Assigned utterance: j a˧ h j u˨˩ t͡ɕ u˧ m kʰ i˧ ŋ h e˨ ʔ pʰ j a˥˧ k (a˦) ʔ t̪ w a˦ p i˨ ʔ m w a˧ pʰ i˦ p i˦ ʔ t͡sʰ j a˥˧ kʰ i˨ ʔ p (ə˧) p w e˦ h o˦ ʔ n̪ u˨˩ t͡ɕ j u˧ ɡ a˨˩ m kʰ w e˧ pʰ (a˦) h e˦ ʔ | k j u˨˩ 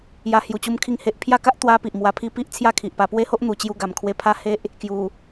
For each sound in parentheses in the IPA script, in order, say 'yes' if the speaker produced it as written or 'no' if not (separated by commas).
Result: yes, no, yes